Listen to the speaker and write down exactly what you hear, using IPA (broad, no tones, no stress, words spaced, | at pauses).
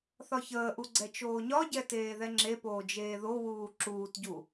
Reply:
θɒçəːʔu ɡ͡ǀɛt͡ʃoːɲɒɟɛ teːðɛŋ͡ǁepoː d͡ʒeːðowuː ǁuːtɟu